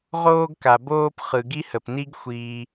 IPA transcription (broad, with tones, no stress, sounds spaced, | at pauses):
ʁ oː˦ ɡ k a˨ b oː˦ p χ ɯ˨ ɡ i˦ h ə˨ p n i˦ ɡ xʷ iː˧